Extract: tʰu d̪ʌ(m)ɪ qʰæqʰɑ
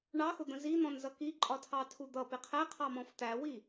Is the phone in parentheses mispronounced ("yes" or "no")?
yes